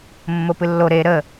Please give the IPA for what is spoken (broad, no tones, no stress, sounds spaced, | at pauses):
mː o p ɨ lː o ɾ e ɾ ə